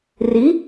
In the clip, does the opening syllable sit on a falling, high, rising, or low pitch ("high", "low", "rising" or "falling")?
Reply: rising